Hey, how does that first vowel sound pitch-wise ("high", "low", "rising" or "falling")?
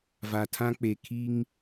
low